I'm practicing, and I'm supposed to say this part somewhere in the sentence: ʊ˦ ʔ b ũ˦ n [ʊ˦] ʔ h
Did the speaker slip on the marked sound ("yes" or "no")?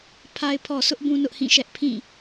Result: no